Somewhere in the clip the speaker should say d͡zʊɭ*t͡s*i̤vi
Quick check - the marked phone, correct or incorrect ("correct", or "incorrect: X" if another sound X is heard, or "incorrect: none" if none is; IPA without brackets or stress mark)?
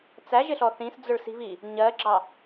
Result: incorrect: s